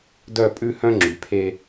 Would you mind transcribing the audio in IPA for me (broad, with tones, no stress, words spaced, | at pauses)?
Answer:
dœ˦˨pʼʉ˦ hœ̃˦ŋ͡ǁy˨pʰe˦